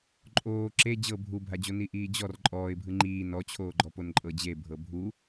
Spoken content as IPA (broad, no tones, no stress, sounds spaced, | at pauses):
ǃʼ oː ǁ e d͡ʑ ɤ bʱ u bʱ a d͡ʑ o n i ʔ iː d͡ʑ ɔ r ǃʼ ɔː ɪ̯ bʱ ɯ ŋ͡ǃ iː n ɔ t͡ɕʰ oː ɡ͡ǃ ɔ p o n ǃʼ ɤ d͡ʑ e bʱ ɤ bʱ u